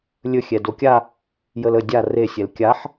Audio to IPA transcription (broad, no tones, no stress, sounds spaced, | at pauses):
lʲ ɵ xʲ ɛ d o kʲ a | j ə l ə dʲ a r e sʲ ɛ l kʲ a ħ